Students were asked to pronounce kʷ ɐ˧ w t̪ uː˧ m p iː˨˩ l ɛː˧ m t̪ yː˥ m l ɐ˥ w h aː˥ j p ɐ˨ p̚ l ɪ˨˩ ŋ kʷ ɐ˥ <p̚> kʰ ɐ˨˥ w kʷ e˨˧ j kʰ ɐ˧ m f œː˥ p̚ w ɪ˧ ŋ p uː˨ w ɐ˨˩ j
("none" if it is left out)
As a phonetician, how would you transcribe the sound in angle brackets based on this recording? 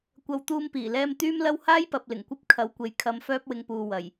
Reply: p̚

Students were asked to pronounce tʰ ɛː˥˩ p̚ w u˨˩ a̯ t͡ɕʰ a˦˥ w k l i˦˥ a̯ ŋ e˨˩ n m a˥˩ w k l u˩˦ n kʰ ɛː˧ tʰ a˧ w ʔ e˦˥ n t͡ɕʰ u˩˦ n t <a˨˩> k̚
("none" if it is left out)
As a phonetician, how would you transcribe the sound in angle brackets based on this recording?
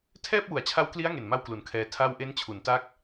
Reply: a˦˥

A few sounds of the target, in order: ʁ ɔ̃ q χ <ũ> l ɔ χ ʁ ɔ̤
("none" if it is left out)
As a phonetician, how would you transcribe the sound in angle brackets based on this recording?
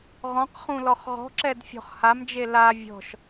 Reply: ũ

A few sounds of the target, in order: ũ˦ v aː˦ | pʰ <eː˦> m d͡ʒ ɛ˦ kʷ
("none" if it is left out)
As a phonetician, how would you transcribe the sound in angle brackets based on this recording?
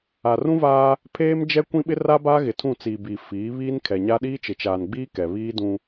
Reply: eː˦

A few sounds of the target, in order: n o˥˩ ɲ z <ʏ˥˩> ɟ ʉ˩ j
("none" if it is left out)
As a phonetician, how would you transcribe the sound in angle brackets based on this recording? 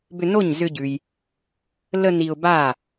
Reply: ʏ˧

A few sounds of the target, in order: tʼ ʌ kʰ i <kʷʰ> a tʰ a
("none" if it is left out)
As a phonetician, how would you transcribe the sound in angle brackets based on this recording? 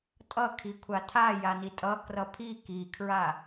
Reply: kʷʰ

